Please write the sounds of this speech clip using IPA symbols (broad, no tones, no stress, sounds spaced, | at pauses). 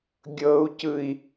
ɡʲ ɤ u̯ c ɯ i̯